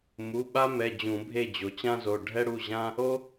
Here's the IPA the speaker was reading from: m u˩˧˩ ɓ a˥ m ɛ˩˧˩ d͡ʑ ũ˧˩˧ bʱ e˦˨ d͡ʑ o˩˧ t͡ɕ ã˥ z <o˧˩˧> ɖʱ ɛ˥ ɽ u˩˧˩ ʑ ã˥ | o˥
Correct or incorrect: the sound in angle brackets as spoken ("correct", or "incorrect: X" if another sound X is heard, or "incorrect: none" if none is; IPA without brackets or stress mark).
incorrect: o˩˧˩